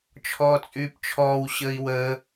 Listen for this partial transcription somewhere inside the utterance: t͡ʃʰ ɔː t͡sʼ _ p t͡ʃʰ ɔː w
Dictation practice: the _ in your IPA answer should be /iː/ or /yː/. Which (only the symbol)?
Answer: yː